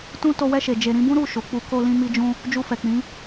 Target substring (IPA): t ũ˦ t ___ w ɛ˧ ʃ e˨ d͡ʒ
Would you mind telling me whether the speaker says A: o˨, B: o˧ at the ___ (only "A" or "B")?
B